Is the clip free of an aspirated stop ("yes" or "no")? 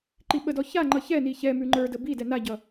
yes